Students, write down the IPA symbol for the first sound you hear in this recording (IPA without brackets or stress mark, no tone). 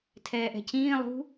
tʰ